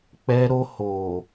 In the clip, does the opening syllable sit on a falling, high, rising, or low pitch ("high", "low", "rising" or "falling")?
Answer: high